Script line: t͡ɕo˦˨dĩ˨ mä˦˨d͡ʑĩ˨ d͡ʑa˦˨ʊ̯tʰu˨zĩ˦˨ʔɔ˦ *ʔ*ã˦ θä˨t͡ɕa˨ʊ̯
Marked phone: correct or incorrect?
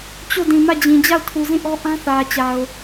correct